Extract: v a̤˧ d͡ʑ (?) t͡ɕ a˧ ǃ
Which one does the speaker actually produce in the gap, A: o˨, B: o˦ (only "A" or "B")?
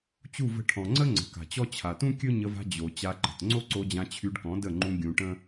A